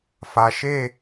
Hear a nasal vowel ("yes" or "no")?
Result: no